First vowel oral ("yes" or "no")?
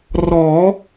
yes